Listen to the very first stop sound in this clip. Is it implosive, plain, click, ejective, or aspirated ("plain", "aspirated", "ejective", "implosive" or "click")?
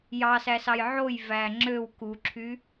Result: click